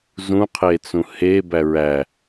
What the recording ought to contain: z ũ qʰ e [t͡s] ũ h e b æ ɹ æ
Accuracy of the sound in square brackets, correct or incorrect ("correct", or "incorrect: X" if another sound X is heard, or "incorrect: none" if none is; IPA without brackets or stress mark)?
correct